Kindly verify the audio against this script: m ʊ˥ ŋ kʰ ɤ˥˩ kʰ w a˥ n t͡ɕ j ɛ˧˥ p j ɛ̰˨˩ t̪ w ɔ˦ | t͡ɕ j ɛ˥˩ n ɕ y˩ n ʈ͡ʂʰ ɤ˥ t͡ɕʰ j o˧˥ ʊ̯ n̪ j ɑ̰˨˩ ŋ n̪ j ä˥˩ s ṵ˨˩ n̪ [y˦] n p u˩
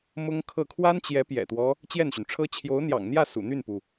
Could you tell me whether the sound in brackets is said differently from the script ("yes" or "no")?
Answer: yes